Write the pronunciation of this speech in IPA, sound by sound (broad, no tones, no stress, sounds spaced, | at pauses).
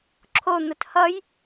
ǁʰ o n̪ ʊ t h ʌ j